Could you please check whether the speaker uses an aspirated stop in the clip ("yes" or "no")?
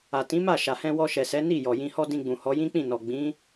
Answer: no